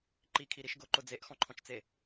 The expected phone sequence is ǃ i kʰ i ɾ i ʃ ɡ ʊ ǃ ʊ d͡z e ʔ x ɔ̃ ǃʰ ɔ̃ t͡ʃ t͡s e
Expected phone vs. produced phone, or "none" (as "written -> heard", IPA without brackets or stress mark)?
none